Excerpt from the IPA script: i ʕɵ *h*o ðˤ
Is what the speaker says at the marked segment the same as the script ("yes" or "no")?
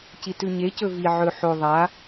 no